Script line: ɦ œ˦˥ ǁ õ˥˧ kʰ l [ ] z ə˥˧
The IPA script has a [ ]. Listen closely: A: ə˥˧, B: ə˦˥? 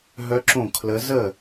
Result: B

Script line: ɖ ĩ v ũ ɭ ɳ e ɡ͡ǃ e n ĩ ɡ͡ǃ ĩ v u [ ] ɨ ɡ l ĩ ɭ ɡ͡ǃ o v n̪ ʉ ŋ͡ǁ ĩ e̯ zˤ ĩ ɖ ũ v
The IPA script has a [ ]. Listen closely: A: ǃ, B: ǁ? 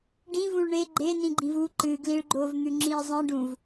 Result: A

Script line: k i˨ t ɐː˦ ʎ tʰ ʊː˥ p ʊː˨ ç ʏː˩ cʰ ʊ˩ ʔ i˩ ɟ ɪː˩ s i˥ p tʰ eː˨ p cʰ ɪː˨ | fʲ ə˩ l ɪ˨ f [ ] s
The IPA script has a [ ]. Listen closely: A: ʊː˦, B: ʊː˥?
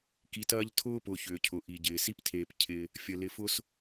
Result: B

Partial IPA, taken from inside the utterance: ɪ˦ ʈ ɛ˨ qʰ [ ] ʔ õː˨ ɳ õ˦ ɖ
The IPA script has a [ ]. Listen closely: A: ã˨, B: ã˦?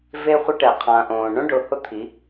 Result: A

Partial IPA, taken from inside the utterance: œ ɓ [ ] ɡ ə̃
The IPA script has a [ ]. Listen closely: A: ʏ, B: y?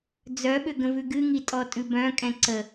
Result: A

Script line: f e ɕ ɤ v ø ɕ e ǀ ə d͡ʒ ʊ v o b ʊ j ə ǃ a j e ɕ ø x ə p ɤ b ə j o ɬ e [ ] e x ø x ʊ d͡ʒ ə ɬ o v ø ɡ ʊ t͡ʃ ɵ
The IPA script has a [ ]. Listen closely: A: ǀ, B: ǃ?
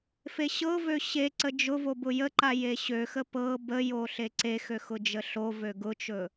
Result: A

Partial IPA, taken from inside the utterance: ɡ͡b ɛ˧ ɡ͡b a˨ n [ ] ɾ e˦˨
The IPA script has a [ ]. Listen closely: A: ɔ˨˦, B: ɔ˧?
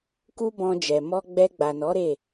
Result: A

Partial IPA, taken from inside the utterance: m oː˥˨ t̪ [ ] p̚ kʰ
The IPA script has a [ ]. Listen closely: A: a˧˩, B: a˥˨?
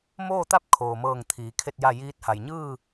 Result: B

